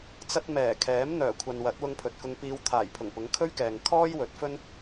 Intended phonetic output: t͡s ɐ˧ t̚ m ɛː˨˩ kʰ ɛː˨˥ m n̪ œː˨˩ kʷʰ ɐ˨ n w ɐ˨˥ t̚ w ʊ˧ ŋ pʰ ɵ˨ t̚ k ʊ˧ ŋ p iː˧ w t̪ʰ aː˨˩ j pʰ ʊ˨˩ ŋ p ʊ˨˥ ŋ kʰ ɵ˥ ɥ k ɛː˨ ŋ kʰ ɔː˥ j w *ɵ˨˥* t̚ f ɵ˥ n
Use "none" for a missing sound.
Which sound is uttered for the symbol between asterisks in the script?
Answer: ɵ˨˥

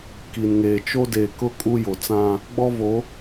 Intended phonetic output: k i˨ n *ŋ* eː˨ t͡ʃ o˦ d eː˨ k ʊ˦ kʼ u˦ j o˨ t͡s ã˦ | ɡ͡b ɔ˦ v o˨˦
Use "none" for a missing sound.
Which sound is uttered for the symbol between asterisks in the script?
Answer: ŋ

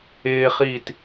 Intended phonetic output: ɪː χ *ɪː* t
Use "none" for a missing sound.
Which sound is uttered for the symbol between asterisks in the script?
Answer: iː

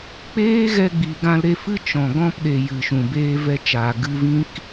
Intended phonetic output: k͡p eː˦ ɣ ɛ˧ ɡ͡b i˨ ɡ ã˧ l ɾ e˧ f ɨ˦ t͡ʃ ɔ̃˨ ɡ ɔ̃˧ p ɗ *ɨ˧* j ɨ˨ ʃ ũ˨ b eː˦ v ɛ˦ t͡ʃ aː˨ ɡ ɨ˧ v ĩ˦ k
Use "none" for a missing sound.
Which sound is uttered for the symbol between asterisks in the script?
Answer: e˧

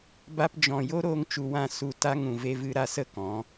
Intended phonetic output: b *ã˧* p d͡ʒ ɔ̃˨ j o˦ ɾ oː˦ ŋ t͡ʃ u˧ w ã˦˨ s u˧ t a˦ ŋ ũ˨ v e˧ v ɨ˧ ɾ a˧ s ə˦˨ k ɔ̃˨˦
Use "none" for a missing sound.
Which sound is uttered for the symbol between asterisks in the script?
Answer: a˧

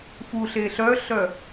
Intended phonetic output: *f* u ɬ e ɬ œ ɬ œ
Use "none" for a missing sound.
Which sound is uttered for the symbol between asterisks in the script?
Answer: f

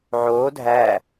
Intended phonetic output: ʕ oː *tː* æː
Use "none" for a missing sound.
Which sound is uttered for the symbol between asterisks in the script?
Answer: dʱ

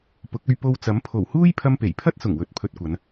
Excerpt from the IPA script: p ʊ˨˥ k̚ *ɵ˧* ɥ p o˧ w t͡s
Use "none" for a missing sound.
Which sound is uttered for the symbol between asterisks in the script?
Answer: ɵ˧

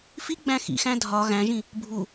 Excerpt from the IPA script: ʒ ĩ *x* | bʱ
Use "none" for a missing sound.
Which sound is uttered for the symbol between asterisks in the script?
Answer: none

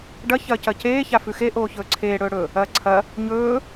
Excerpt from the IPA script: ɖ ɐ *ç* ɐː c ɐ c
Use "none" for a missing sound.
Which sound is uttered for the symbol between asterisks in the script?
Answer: ç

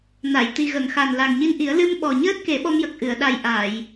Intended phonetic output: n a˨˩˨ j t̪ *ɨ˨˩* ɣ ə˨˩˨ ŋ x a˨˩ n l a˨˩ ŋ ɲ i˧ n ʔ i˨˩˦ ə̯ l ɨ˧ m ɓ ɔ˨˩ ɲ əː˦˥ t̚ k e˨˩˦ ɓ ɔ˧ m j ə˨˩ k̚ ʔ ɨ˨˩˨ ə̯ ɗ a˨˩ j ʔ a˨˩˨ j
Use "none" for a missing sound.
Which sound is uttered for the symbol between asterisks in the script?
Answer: i˨˩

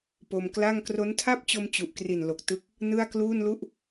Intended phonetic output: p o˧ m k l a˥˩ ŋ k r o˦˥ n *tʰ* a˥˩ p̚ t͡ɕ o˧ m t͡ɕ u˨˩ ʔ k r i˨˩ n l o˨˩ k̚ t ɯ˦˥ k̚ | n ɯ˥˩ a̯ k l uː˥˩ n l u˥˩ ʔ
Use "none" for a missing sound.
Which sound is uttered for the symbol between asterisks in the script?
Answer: tʰ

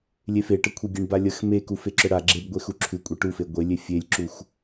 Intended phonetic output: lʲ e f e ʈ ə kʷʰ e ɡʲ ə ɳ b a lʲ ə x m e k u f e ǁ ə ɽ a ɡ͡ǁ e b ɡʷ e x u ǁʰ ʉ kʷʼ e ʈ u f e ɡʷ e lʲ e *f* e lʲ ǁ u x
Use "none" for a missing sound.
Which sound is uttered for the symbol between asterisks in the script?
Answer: fʲ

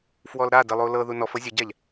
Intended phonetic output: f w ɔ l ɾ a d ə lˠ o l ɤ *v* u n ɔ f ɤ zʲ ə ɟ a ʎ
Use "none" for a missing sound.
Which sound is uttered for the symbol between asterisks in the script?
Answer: ð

